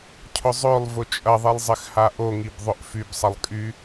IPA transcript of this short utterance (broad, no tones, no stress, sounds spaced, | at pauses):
cʰ ʊ zˤ ø lˠ v ʊ t͡ʃʼ ɐ ðˤ i lˠ zˤ ɪ x h a ʔ o ŋ i b ðˤ ʊ ʔ f y b sˤ ɐ lˠ kʼ y